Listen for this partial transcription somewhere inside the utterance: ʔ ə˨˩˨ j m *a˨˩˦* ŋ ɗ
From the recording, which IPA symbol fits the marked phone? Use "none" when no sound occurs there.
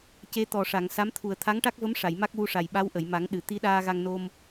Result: a˨˩˦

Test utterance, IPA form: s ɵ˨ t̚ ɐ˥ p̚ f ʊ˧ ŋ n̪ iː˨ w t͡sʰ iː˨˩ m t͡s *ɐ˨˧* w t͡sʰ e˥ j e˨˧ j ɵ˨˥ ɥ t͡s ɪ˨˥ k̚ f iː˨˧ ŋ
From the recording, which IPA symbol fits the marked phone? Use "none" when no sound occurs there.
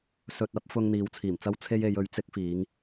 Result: ɐ˥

